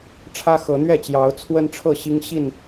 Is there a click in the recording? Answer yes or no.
no